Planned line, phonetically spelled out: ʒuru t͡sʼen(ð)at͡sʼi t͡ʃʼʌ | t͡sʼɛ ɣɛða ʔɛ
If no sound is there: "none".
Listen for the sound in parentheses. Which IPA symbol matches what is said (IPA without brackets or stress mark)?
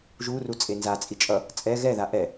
z